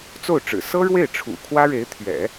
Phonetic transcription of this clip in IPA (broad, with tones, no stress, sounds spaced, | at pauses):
t͡s o˥˩ ʊ̯ ʈ͡ʂ ɻ̩˨˩ s ɤ˥ ɻ w e˥˩ ɪ̯ ʈ͡ʂʰ ṵ˨˩ kʰ w ä˥ ɻ e˧˥ ɪ̯ t̪ʰ ɥ ɛ̰˨˩˦